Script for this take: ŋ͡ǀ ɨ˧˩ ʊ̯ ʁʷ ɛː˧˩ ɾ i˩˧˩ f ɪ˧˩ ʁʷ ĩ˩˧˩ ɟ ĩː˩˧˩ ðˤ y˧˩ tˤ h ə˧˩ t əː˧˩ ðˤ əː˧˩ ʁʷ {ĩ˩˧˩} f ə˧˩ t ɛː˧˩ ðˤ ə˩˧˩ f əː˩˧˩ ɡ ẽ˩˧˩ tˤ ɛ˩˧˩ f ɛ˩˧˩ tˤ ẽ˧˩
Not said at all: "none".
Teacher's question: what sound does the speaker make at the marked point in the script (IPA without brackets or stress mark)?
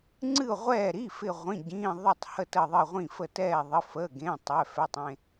ĩ˧˩